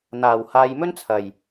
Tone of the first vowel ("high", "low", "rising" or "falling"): low